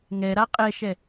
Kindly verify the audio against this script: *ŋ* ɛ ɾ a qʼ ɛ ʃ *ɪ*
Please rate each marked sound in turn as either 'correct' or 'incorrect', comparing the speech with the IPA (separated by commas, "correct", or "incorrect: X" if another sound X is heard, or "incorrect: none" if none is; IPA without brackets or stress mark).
correct, incorrect: ɛ